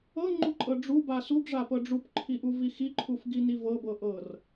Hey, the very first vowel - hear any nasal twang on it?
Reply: no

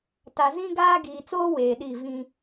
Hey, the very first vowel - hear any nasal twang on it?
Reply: no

